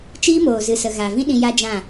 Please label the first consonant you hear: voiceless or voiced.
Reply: voiceless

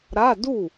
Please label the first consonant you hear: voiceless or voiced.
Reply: voiced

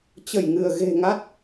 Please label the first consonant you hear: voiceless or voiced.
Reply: voiceless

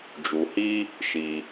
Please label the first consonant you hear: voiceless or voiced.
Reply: voiced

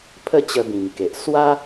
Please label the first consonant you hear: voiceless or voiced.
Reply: voiceless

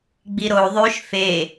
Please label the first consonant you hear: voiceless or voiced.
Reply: voiced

